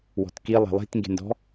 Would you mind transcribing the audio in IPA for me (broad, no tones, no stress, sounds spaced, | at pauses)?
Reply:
w ɔ̤ t k i lˠ e̤ lˠ i̤ t ŋ ɡ e̤ n d ɔ̤